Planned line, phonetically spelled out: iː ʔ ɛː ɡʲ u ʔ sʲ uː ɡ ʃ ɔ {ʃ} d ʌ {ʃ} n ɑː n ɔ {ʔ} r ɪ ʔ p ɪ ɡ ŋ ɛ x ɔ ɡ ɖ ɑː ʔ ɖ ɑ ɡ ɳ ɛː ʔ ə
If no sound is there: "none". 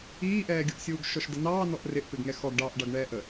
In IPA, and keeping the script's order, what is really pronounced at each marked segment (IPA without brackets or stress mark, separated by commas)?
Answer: ʃ, none, ʔ